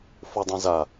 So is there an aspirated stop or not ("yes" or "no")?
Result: no